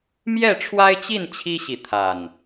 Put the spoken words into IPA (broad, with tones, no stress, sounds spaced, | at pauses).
m j ɛ˥˨ ʈ͡ʂʰ w a˦ ɪ̯ t͡ɕ i˥˨ n t͡ɕʰ i˦ ɕ i˨ t̪ʰ a˨˩ n